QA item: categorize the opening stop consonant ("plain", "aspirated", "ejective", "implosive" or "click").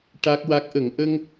plain